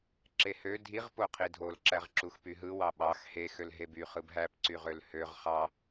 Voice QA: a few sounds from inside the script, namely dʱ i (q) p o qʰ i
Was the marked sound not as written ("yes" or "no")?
yes